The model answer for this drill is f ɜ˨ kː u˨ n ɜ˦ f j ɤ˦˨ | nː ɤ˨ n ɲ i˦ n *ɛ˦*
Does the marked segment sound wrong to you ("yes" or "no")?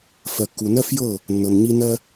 yes